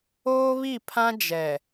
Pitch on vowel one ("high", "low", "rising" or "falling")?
high